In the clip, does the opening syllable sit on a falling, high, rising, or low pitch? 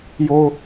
high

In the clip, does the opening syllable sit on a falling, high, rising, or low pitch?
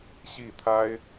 falling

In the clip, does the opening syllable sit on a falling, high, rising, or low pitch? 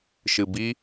low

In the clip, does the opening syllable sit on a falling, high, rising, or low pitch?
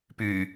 low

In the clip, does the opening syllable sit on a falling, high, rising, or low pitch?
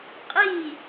falling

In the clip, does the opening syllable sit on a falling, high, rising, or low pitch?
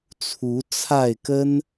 rising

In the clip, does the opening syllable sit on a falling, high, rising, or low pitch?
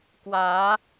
rising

